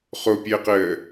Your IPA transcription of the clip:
χ o pʲ əː q əː

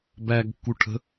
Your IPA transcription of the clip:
b æ ɡ kː u ʈʰ ə̤

